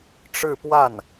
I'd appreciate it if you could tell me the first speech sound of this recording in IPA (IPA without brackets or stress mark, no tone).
ʈ͡ʂ